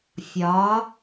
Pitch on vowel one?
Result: rising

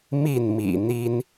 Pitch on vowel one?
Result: falling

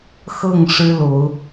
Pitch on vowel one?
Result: falling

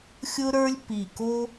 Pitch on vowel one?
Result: high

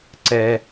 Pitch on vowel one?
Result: low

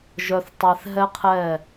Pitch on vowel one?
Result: low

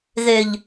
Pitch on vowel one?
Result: low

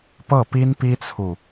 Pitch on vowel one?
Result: falling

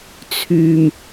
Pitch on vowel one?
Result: low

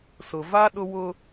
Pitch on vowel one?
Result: low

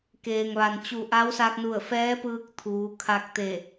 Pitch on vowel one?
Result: low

